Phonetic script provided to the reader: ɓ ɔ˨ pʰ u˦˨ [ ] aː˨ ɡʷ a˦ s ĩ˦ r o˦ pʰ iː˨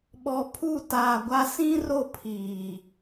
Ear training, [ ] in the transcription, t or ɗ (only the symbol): t